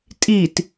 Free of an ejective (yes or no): no